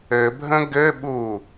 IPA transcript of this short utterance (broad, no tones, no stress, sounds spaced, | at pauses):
ɘ bʱ ə̃ ɡ ɘ ɓ u